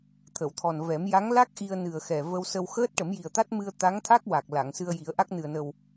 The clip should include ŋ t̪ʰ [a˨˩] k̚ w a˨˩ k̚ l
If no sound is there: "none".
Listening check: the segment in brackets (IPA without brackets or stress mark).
a˦˥